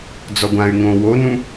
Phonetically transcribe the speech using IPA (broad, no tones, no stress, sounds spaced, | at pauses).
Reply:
d͡z ɔ ɡʷ ã y̯ ŋ õ w o n ũ